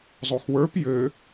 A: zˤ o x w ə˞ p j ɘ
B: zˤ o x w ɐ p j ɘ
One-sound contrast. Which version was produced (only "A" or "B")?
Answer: A